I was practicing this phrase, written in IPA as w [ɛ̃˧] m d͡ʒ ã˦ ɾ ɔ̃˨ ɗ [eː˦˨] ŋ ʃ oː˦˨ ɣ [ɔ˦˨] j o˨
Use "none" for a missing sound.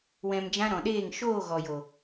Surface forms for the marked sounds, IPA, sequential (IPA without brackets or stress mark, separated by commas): ɛ̃˧, eː˦˨, ɔ˨